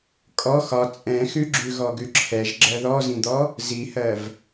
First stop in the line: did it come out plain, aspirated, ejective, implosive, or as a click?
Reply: ejective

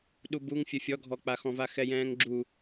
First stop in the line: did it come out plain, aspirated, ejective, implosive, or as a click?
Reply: implosive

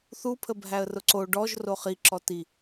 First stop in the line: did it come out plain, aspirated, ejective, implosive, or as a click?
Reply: aspirated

